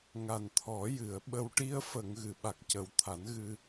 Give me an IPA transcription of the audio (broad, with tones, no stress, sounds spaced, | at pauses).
ŋ a˨˩ n t̪ʰ ɔ˨˩˦ j ɨ˨˩˨ ə̯ ɓ ə˨˩ w ʈ i˧ ə̯ f ə˨˩˨ ŋ ɣ ɨ˨˩˨ ɓ a˨˩ k̚ c ə˨˩˦ w t̪ʰ a˨˩˦ n ɣ ɨ˧